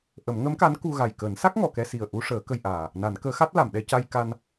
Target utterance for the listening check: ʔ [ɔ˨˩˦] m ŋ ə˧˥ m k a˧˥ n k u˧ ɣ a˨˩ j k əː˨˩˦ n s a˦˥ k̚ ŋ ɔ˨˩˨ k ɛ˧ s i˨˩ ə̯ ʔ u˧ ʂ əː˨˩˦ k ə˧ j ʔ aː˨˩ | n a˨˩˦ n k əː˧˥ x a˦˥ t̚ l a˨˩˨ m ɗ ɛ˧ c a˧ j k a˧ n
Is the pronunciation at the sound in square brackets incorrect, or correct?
incorrect: ə˨˩˦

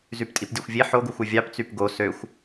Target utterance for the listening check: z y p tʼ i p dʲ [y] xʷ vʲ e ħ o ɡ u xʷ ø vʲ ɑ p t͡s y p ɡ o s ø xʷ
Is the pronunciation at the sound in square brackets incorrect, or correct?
incorrect: ø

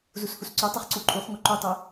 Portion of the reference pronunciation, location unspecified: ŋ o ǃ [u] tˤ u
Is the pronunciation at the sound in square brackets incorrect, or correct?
correct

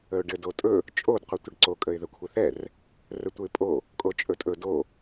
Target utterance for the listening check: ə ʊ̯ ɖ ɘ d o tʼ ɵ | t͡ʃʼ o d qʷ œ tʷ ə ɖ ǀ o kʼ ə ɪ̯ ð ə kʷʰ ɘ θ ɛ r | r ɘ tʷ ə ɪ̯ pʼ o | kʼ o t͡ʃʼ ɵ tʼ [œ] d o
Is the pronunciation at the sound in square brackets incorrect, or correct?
incorrect: ɵ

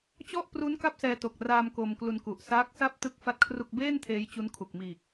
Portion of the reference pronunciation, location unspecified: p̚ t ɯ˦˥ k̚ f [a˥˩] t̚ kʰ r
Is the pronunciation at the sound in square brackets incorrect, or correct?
correct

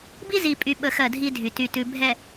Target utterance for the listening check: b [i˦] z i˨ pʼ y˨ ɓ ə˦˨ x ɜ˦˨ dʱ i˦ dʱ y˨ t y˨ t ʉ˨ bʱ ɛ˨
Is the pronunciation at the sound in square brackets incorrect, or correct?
correct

